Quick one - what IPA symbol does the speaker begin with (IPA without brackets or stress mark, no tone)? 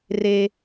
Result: r